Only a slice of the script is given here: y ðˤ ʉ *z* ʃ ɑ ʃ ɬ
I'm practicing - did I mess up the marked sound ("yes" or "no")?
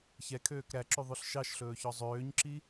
yes